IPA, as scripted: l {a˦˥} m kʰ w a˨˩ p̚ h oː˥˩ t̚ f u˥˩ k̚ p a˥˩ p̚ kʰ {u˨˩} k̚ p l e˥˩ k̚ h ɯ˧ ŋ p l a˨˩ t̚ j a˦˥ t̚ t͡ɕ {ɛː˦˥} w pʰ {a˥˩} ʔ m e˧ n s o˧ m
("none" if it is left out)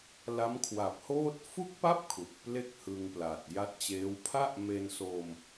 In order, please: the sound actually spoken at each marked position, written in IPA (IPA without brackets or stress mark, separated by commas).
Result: a˦˥, u˨˩, eː˦˥, a˥˩